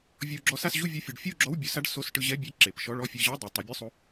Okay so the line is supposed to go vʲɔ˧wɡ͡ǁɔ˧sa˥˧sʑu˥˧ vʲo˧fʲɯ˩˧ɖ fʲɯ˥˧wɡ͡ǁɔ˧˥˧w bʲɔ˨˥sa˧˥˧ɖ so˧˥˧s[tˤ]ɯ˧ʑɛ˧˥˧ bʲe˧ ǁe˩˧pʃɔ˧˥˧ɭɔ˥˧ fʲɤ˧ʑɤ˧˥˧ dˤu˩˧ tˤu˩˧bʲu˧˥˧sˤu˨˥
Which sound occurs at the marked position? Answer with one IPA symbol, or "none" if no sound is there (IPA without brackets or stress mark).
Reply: ʈ